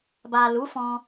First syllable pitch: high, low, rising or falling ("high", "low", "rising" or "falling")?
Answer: low